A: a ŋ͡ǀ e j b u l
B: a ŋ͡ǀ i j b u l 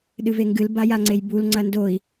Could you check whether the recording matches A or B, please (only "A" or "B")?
A